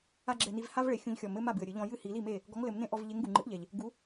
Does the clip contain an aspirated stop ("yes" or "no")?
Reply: no